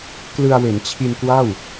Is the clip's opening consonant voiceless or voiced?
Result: voiceless